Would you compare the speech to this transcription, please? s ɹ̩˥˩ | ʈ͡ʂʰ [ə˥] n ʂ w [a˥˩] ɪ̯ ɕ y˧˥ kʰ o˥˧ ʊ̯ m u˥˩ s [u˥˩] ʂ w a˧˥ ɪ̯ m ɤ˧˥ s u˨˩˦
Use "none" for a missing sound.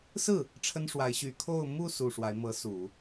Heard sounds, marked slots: ə˥, a˧˥, u˨˩

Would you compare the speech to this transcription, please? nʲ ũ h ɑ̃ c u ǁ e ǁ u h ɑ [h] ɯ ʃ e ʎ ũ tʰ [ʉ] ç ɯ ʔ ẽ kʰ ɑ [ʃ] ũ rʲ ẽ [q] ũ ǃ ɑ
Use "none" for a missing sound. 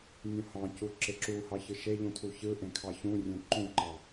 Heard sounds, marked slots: ç, u, ç, ǃ

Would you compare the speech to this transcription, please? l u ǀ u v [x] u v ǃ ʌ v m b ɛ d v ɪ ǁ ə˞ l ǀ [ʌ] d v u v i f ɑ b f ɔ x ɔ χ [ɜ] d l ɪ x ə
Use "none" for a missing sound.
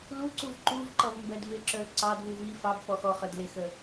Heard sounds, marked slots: ǃ, ɑ, ə˞

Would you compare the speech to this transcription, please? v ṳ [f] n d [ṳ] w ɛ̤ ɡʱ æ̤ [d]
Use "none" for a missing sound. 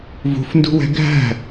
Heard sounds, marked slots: f, ṳ, none

